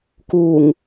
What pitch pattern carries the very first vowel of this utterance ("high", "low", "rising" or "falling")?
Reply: low